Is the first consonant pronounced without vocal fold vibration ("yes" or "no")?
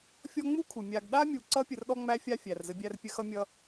yes